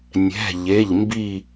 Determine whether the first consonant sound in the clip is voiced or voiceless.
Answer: voiced